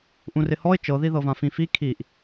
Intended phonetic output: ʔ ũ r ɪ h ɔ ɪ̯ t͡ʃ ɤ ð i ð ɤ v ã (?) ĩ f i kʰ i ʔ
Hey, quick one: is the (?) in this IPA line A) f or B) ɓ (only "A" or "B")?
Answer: A